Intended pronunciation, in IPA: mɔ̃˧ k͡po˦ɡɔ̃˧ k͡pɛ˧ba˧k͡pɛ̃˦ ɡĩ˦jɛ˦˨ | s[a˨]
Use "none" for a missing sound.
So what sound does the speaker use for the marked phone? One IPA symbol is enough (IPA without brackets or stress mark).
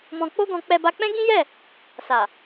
a˨